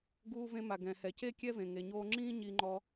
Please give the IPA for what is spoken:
ɡ uː˧ v ẽ˧ m a˩ ɡ ɛ̃˩ h ɛ˩ c e˥ kʲ ɛ˥ v ẽ˩ ŋ e˩ ɲ oː˧ ŋ͡ǁ ĩː˥ ɲ i˧ ŋ͡ǃ ɔ˧

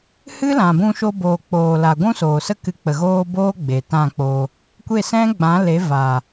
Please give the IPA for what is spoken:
h ɨ˦ l ã˨ b ũ˧ ʃ o˧ b oː˨ k͡p oː˨ l a˨ ɡʷ ũ˦ s oː˨ s ə˦ k ɨ˨˦ k͡p ə˨ ɣ oː˧ b oː˦ ɡ͡b e˨ t ã˦˨ k͡p o˧ | kʷ e˦˨ s ɛ̃˦ ɡ͡b ã˨˦ l e˨˦ v a˨

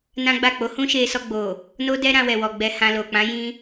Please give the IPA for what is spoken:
n ã˦ ɡ͡b a˦˨ k͡p o˨˦ h ũ˦ ʃ e˧ s ɔ˧ ɡ͡b o˨ | n o˦ d ɛ˦ ɾ ã˧ w ɛ˨ w ɔ˨ ɡ͡b ɛ˧ h ã˧ l o˨ k͡p ã˨˦ j ĩ˧

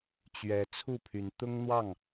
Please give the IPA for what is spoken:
t͡ɕ ɥ ɛ˨˦ t͡sʰ u˥˨ pʰ y˨˦ n t̪ ʊ˦ ŋ n̪ w ɑ˥˨ ŋ

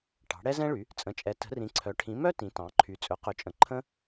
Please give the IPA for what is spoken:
ʈ ɑ̤˩˥ ɽ ɛ˥ z ɛ̃˥ ɭ y˩˥ | t͡sʼ ə̃˩˥ t͡ʃʼ ɛ˩˥ t ə̤˩˥ r ĩ˩˥ ǀʰ œ˩˥ ʈʰ ĩ˩˥ m œ˥ t ĩ˩˥ t ɑ̃˩˥ ǃʰ y˩˥ t͡sʼ ɵ˩˥ q ɵ˩˥ t͡ʃʼ ə̃˩˥ ǃʰ ə̃˥

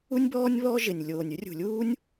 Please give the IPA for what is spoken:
u˥ nʲ b ɔː˥ nʲ β ɔ˥ ʒ ɪ˧˩ nʲ lʲ oː˧˩ nʲ ʉ˥ rʲ ṳ˧˩ lʲ uː˥ nʲ

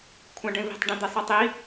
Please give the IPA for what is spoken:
kʷʰ ã ɖ ẽ v i̤ tˤ ɖ ɛ̃ d̪ e sˤ i tˤ i

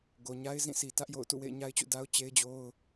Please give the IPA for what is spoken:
ɡ o˨ ɲ a˦ ɪ̯ z ĩ˦˨ s i˨ t ä˦ ʔ j o̰˦˨ ʊ̯ t ṵ˦˨ w ḛ˦˨ ɪ̯ ɲ a˦ ɪ̯ t͡ɕ ṵ˦˨ d a˦ ʊ̯ t͡ɕ e˦ ɪ̯ d͡ʑ o˦ ʊ̯

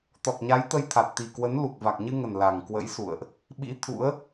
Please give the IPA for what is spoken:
t̪ ɔ˨˩ k̚ ɲ a˨˦ j t̪ ə˧ j t̪ʰ a˨˩ t̚ t̪ i˨˩ k w ə˨˦ n l u˨˩ k̚ v a˨˩ k̚ ɲ ɨ˧ ŋ ə˨˩ n l a˨˩ ŋ k w ə̰˧˥ j s ṵ˧˨ ə̯ ʔ | ɓ ḭ˧˥ t̪ʰ ṵ˧˥ ə̯

